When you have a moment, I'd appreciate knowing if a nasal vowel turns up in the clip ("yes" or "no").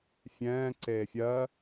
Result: yes